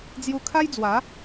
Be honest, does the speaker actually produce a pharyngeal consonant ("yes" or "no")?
no